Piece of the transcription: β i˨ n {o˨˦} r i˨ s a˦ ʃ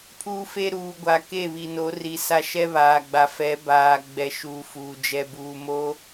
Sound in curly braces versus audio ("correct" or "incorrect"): correct